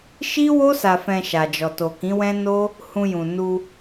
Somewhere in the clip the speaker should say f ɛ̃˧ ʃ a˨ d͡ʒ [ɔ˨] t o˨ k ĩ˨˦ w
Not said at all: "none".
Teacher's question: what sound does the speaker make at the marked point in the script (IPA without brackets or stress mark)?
ɔ˨